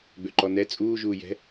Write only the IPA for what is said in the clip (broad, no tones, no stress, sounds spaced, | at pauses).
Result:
ɡ͡b ø ǃ ɔ n ɛ t͡sʼ uː ʒ uː j ɛ̤